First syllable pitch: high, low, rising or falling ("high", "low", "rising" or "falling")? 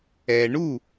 low